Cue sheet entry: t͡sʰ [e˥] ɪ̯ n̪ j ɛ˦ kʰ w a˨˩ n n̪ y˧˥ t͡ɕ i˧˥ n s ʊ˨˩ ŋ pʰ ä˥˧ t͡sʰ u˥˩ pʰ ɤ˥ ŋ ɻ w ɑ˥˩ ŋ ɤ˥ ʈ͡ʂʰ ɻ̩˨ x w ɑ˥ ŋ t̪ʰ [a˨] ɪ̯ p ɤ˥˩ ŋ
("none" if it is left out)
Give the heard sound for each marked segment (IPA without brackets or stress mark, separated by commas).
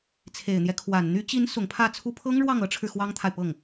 e˨˩, a˨